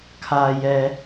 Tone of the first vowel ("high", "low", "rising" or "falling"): low